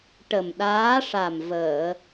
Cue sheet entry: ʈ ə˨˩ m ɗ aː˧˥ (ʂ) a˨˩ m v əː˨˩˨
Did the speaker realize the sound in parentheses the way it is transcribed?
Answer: yes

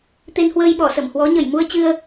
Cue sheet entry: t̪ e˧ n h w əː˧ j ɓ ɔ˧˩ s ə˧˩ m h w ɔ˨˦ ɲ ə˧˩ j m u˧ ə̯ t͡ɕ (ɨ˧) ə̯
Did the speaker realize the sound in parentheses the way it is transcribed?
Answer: yes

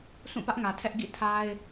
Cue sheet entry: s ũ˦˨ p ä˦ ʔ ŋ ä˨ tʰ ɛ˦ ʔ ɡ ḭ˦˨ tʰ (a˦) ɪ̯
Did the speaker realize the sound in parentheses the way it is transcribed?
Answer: yes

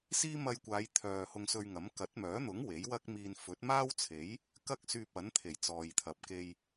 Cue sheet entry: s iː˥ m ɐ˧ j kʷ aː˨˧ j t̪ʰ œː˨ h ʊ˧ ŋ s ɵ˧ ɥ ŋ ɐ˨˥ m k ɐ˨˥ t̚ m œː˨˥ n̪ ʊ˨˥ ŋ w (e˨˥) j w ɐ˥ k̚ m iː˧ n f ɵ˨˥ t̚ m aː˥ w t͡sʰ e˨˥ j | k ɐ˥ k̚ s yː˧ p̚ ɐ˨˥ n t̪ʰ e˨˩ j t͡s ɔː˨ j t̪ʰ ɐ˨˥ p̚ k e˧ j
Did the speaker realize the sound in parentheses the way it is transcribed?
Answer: yes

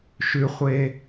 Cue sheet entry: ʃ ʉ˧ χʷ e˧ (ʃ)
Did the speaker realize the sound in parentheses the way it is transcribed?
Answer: no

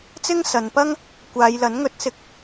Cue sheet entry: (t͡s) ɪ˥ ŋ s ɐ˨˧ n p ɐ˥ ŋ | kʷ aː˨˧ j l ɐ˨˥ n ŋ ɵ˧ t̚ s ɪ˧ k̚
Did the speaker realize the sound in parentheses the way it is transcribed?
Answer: yes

